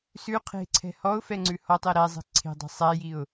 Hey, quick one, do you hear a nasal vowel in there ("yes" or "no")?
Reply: no